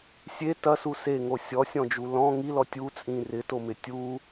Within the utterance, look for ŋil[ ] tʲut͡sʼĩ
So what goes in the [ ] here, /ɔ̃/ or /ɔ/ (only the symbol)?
ɔ